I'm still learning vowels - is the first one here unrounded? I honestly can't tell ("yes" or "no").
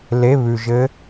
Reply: yes